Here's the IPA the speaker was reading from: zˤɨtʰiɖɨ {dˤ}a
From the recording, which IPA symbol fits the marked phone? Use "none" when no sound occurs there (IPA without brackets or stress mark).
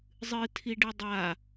dˤ